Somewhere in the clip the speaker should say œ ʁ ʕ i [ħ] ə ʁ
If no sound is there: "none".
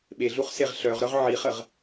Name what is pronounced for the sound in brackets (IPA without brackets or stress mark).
χ